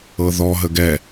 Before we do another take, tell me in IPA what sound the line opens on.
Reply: ɤ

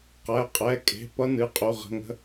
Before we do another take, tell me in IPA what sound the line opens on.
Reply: q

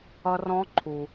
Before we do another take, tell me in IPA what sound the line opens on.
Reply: ʌ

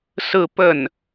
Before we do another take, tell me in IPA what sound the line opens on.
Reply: s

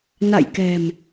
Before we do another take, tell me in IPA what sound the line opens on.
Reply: n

